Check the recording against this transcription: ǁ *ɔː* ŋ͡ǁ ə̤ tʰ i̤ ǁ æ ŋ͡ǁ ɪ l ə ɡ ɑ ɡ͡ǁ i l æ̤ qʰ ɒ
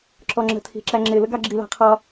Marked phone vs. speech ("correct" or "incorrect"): incorrect